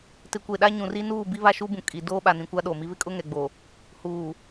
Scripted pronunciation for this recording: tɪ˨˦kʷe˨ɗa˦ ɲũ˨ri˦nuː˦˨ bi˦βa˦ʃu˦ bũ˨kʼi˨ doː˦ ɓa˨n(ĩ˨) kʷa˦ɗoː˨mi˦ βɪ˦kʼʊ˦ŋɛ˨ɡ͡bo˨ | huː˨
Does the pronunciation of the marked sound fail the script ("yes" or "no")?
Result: no